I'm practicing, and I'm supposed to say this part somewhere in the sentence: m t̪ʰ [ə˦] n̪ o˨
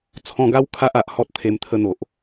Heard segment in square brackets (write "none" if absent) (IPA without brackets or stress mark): ə˧